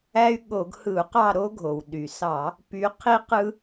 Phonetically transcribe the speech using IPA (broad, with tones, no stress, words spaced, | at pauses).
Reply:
æ˦y̯ɠo˧˩˧ɡhɯ˧˩˧u̯qɑ˦˨ ɾo˦ɡʱo˩w ɗy˩sɑ˧˩˧ | py˨˦qʰi˦qɯ˦